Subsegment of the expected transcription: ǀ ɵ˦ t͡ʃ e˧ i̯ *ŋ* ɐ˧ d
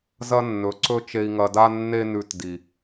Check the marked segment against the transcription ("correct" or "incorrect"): correct